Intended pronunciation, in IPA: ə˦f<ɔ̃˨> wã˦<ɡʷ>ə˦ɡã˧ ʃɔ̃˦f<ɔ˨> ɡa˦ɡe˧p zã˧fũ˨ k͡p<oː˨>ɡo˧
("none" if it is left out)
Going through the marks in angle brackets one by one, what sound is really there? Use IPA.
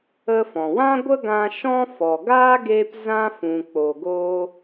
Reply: ɔ̃˨, ɡʷ, ɔ˨, o˨

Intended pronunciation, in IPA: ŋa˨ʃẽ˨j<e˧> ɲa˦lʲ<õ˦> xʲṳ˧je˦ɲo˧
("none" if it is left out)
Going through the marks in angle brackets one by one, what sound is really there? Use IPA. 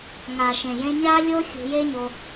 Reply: ẽ˧, o˦

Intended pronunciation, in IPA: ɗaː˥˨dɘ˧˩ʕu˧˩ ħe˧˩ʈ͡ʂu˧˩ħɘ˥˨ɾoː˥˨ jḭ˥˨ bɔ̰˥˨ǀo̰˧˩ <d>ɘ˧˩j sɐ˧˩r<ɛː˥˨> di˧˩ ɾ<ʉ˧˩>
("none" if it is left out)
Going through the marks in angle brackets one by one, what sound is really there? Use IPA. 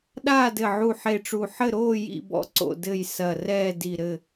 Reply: d, ɛː˥˨, ɘ˧˩

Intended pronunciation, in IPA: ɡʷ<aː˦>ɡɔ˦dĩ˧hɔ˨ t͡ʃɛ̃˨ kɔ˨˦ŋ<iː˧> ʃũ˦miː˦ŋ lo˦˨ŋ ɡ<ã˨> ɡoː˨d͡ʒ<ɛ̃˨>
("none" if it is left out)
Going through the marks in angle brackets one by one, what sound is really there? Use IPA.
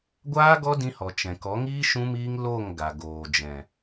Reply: aː˦, iː˦, a˨, ɛ̃˨

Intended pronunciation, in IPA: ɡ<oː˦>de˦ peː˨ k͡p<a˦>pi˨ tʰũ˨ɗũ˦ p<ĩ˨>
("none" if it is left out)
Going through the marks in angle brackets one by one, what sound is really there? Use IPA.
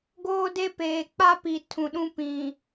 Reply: oː˦, a˦, ĩ˨

